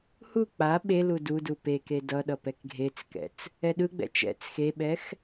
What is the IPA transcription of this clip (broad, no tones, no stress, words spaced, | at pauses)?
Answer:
hu k͡pa ɓelu dudu peke dʌɗʌ pɛkɡʱet͡skɛ̰t͡s | ɛɗɯɡ͡bɛ̰ t͡ʃɛ̰t͡s xeɓɛx